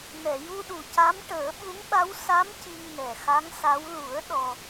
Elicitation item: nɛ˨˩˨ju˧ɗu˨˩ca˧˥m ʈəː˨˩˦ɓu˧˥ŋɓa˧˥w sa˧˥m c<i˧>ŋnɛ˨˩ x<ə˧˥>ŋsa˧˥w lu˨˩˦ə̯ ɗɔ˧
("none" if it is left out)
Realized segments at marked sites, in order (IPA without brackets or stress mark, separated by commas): i˧, a˧˥